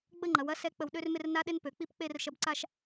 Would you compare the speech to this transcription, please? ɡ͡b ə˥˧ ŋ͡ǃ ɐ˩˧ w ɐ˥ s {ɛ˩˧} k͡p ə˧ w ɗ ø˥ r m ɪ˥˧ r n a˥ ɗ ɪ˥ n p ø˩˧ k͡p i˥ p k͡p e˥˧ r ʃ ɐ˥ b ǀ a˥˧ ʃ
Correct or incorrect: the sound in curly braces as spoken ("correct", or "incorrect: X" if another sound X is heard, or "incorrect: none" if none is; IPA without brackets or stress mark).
incorrect: ɛ˥